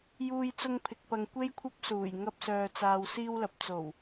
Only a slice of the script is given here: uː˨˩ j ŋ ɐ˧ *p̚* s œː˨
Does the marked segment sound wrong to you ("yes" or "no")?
no